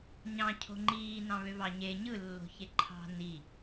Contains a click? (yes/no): yes